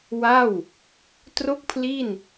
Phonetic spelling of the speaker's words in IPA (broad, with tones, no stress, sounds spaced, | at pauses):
w a˥˩ w | t r o˥˩ k̚ pʰ l i˥˩ n